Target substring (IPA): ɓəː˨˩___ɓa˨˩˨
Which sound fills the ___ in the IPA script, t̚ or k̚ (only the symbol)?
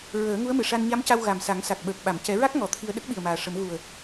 k̚